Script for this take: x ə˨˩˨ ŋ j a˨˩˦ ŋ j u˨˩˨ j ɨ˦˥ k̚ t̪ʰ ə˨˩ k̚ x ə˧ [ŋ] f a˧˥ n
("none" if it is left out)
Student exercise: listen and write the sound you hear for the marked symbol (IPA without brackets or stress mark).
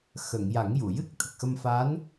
m